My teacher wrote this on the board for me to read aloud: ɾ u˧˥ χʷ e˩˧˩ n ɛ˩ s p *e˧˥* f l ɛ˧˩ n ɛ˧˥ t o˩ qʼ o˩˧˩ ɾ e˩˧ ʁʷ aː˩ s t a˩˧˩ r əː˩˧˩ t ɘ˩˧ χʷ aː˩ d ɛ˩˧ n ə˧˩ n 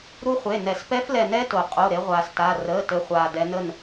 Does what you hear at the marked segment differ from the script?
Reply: yes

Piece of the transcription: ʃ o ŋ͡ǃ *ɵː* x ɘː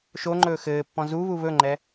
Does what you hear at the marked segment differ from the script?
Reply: no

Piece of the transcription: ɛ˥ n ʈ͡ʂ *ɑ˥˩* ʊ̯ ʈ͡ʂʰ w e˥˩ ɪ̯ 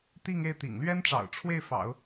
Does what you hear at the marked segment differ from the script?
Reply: yes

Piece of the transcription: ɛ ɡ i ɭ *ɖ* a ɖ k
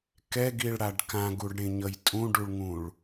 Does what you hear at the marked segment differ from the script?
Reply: yes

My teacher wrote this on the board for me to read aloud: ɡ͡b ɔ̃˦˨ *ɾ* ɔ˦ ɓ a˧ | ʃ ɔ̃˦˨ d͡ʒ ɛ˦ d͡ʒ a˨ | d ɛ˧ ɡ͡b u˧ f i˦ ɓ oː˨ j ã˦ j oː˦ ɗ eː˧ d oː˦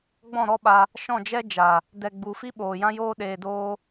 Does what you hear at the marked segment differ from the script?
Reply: no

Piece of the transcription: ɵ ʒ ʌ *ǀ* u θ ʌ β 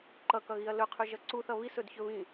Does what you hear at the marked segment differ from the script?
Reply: no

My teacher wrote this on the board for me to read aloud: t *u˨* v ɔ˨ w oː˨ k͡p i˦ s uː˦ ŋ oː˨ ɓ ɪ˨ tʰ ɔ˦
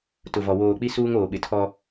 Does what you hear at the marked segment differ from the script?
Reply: yes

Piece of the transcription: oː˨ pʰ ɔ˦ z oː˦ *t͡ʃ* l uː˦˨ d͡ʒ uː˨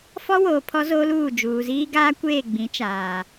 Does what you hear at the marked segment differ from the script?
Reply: yes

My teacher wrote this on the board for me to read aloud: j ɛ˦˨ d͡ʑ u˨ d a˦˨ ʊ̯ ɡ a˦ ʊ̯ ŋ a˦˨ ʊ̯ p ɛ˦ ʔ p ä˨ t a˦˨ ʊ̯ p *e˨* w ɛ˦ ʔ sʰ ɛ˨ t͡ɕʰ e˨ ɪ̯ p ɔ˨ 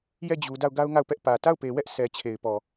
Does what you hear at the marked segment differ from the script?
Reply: no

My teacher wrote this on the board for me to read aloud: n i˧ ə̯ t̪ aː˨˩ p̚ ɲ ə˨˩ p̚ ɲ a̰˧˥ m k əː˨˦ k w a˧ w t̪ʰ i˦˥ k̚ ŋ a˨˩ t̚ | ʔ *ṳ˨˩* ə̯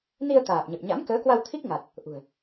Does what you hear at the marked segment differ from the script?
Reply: no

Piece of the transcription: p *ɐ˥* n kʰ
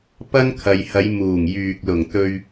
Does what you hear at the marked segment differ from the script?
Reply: no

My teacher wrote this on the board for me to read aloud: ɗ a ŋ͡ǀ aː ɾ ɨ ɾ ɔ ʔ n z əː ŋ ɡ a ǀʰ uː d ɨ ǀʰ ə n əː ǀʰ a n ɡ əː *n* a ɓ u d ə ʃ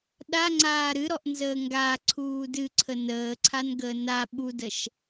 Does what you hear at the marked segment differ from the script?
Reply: no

